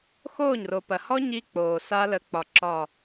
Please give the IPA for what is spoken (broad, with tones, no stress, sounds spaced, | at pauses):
x oː˦˨ ɲ r o˨ p ɐ˨ h ɔ˦ ɲ i˧ k͡p oː˨ s a˧ l ə˨˦ k͡p ɒ˨ ǁ ɒː˨